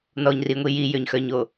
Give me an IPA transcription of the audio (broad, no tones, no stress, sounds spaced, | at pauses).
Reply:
n ɔ ɲ r i ŋʷ i j i j ø ɲ x œ ɲ o